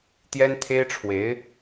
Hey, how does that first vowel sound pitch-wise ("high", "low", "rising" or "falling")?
high